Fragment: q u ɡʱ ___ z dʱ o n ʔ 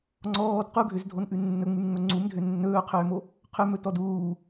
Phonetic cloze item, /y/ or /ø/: ø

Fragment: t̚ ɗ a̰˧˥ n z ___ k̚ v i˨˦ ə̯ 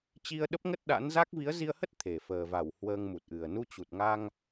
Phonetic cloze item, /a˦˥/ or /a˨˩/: a˦˥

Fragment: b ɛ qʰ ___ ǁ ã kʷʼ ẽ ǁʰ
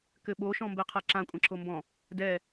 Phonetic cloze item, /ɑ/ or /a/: a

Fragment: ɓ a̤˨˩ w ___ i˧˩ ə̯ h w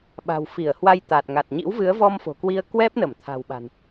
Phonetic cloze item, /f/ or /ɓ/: f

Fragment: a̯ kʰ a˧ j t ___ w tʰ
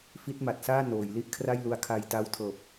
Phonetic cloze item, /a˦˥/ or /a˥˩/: a˦˥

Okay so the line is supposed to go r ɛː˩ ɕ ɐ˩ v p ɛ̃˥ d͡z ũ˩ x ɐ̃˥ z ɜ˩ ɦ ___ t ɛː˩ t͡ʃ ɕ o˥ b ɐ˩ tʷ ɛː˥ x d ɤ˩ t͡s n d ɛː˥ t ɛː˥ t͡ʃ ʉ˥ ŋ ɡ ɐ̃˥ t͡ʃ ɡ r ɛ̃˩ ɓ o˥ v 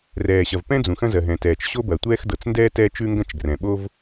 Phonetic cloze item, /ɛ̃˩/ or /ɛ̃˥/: ɛ̃˩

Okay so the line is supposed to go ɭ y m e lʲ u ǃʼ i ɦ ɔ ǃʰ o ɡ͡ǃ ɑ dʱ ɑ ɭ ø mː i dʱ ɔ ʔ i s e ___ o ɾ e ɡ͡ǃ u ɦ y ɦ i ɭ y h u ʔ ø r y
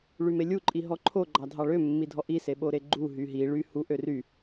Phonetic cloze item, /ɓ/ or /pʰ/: ɓ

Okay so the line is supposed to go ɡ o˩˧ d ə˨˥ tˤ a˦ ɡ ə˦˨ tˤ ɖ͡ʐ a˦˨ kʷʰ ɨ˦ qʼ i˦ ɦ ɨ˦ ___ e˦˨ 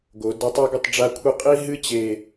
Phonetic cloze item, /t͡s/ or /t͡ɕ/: t͡ɕ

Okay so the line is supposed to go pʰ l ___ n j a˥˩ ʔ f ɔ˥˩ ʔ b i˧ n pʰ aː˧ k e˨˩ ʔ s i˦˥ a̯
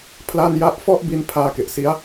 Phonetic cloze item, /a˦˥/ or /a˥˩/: a˥˩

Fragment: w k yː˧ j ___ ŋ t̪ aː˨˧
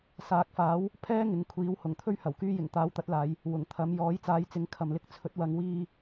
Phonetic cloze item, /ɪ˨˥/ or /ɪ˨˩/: ɪ˨˩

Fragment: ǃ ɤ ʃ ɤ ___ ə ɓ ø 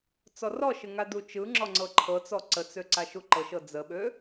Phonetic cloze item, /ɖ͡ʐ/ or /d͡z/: d͡z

